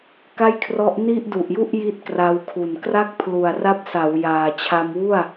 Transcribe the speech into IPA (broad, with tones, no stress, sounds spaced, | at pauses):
k a˥˩ j kʰ r ɔ˦˥ ʔ n i˥˩ ʔ d u˨˩ ʔ j u˥˩ ʔ j i˦˥ t̚ k r a˧ w kʰ u˨˩ n k r a˥˩ k̚ pʰ l u˨˩ a̯ r a˦˥ p̚ s a˩˦ w j aː˨˩ t͡ɕʰ a˧ m w u˥˩ a̯